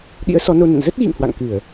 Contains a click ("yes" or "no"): no